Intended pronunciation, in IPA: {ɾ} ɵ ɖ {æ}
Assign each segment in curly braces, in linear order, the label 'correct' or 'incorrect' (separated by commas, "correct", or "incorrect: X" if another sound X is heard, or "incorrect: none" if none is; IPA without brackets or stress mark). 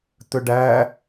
incorrect: t̪, correct